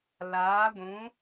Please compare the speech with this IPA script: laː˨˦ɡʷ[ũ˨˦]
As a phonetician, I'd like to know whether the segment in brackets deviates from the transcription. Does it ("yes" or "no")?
no